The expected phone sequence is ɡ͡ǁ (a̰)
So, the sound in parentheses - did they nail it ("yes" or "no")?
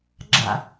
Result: yes